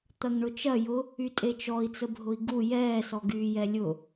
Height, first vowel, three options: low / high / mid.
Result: low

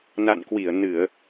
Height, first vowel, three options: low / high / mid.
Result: low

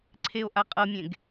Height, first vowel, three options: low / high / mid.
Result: mid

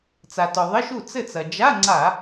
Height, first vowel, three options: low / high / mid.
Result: low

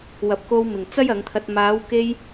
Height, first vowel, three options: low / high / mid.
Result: low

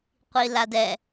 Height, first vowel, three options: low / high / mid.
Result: high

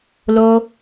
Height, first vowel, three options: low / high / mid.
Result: mid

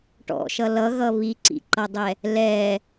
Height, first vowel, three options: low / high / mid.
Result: mid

